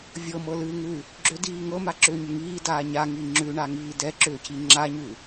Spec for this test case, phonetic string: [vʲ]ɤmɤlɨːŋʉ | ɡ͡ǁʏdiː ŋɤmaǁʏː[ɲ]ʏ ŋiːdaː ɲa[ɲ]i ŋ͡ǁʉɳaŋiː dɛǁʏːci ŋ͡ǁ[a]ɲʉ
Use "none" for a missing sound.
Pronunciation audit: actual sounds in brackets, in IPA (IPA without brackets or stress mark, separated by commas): vʲ, ɲ, ŋ, a